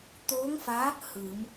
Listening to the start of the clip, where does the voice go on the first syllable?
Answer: rising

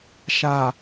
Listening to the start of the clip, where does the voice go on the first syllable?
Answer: low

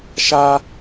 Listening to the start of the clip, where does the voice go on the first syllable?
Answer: high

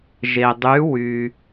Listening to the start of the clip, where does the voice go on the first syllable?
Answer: low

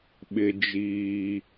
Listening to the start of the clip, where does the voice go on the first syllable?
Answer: high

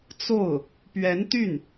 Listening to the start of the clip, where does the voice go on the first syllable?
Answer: falling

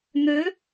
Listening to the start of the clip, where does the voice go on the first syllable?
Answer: rising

